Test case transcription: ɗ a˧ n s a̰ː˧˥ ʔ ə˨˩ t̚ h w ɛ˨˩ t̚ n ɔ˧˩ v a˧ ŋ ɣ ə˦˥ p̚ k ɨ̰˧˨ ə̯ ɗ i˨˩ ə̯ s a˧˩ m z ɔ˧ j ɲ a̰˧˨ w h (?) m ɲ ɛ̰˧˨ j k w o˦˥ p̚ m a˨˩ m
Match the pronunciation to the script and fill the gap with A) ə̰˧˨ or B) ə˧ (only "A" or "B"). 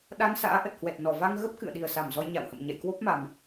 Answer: A